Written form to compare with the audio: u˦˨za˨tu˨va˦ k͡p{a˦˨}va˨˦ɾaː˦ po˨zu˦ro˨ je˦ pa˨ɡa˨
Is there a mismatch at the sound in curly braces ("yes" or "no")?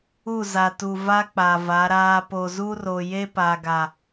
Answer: yes